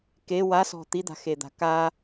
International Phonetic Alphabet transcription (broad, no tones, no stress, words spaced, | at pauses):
ke wasɔ̤ t̪id̪a̤xed̪a̤ ka